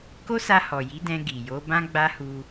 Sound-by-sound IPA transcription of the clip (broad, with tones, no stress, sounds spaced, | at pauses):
k o˦ s a˧ h ɔ˨ j i˨˦ d ɛ̃˧ ɡ i˨ j o˨˦ b ã˦ ɡ͡b a˦ h u˧